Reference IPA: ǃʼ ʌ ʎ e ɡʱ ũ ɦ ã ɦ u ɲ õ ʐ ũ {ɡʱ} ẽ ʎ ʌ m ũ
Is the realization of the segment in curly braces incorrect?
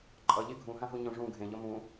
no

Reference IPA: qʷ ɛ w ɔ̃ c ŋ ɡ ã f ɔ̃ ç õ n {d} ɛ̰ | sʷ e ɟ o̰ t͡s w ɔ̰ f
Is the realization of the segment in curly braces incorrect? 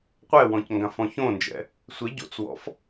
yes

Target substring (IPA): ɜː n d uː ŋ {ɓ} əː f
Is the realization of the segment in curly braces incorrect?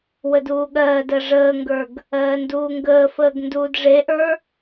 yes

